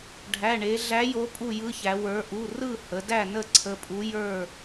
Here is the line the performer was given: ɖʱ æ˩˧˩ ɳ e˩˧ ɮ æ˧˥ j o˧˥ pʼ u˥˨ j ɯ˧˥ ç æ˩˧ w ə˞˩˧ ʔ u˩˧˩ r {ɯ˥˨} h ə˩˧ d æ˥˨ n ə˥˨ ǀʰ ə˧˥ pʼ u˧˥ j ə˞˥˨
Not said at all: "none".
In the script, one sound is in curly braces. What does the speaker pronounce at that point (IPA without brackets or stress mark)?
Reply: ɯ˥˨